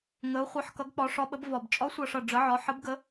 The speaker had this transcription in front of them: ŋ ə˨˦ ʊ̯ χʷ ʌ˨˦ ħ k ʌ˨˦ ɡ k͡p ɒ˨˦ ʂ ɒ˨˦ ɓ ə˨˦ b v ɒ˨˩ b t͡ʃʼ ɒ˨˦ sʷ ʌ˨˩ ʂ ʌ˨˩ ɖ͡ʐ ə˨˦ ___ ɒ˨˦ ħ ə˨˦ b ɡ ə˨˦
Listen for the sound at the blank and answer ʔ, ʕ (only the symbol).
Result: ʕ